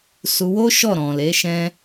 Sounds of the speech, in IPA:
s u˧ w o˦ ʃ ɔ˦˨ ɾ ɔ̃˨ l e˨˦ ʃ ɛ̃˦

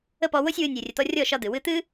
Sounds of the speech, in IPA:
ə˦˨ p ɔ˧ w o˦ sʲ w ɨ˧ nʲ ɨ˨ rʲ ə˨ t̪ ɔ˧ rʲ ɔ˦˨ ʃ ɒ˧ d̪ ɨ˨ w ɨ˧ t̪ ɨ˦

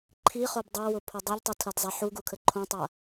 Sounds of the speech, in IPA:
ǃʰ i χ o b dˤ ɤ w ʊ pʰ o dˤ ɤ ʎ tˤ u tʰ ɐ d zˤ a ħ u ɡ u kʰ ə ǃʰ õ tˤ a

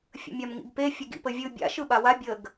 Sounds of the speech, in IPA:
fʲ ə̰ mʲ a m ŋ ḭ ɡ p e fʲ ə ɡ ḭ p ə vʲ ɯ bʲ a̰ ʃ ɯ ɓ a w a bʲ ə ɡ

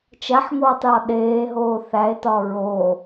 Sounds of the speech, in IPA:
t͡ʃ æ ħ ŋ oː tˤ j ɒ ɗ eː ɦ oː θ æ e̯ t ɒ ɹ oː

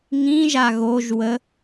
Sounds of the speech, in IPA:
ŋ ĩ ʒ a ɣ o ʒ w ə

